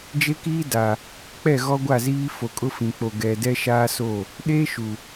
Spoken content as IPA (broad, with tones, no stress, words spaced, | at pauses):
d͡ʒe˦kiː˦da˨ | k͡pɛ˦˨ɣɔ˦ ɡʷa˦˨ziː˦ fo˨kʼʊ˦fĩ˨k͡po˨ ɡɛ˨dɛ˦ʃaː˦so˦˨ | ɗeː˦ʃu˨